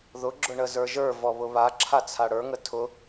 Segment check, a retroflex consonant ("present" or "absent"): present